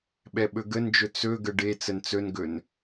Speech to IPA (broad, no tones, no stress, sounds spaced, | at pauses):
ɓ ɛ ɓ ɵ ɡ ə n d͡ʒ ɵ t͡s ɵ ɡ ə ɖ e t͡s ə n t͡s ɵ n ɡ ɵ n